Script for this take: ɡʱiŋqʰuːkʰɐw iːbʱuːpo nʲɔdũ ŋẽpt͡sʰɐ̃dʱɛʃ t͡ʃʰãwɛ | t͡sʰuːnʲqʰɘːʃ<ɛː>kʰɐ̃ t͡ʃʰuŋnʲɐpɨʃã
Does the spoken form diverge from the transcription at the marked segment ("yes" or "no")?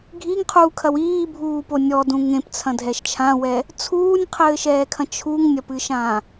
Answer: no